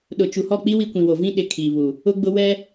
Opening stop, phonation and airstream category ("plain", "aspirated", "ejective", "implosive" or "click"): implosive